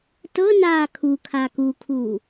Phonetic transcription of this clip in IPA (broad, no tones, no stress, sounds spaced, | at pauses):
t ɤ n aː kʰ u kʰ a k u kʰ uː